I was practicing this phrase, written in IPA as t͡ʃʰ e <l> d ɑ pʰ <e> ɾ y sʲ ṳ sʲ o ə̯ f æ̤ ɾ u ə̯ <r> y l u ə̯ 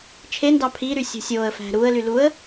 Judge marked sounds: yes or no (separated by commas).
no, no, no